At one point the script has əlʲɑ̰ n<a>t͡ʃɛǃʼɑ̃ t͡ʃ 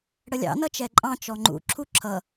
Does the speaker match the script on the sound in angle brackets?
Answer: no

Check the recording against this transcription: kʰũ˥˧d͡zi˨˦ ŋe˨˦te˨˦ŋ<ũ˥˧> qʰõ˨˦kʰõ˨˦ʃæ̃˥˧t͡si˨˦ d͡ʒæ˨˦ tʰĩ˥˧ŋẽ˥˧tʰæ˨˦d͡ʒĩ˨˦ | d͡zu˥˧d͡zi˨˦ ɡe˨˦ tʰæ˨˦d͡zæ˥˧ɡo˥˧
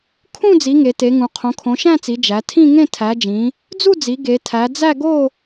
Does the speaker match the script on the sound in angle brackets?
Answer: no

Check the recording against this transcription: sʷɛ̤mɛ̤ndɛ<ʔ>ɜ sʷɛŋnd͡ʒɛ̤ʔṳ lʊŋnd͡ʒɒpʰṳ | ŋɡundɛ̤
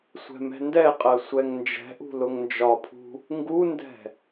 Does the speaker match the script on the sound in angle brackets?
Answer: no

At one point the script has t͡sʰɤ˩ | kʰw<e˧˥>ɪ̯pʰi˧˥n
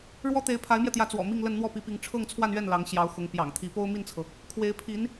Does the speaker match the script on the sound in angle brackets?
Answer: yes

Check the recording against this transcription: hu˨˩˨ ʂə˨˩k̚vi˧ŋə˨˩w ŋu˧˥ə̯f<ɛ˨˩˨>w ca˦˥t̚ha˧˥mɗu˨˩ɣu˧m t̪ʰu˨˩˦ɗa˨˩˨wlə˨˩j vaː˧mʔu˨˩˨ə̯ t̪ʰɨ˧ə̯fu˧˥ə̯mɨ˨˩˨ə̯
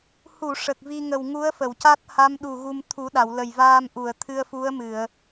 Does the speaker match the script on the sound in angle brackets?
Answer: no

